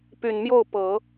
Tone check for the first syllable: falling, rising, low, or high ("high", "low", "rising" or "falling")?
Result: low